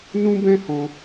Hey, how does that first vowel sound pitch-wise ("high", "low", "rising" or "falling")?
high